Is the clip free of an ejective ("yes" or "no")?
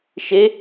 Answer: yes